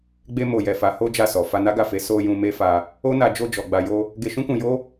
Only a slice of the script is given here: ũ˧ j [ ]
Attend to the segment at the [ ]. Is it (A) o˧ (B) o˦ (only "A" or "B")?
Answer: B